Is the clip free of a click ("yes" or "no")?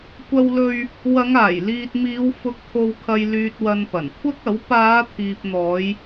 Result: yes